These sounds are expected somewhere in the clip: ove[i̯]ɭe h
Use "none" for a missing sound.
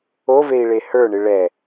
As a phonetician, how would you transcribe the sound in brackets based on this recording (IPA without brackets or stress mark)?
i̯